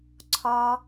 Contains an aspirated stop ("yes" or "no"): yes